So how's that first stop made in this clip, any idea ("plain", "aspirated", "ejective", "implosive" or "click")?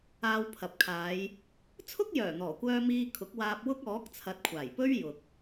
aspirated